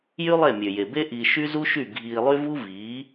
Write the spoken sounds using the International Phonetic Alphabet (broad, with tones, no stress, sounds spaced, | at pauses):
j y˦ lˠ e˦˨ mʲ ø˨ j e˨ b e˦ ʔ iː˧ ʃ y˦ z u˦ ʃ y˦˨ ɡʱ iː˧ lˠ y˦ v u˦ v iː˨˦